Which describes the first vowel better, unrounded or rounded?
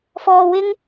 rounded